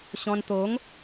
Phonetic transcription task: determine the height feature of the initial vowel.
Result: mid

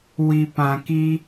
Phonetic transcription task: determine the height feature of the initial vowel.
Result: high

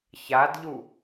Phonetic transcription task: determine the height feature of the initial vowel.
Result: low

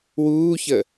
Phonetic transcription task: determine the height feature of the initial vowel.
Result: high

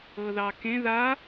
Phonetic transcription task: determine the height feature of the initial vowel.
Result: mid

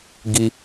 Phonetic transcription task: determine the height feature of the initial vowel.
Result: high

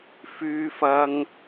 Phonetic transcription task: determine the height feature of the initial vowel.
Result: high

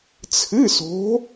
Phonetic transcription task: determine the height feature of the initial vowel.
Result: high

